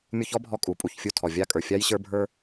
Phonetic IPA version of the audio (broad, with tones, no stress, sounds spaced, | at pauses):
mʲ u˥ ç ɔ˥ bʱ ɔ˧ kʼ u˩ pʼ u˧ ç fʲ u˧ tʰ ɔ˩ vʲ a˥ kʼ ə˞˩ fʲ a˥ j ɕ ə˞˥ bʱ ə˞˥